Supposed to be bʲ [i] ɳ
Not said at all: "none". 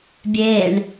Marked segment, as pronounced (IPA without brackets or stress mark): e